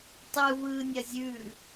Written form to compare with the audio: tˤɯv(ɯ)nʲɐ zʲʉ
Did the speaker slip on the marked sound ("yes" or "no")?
yes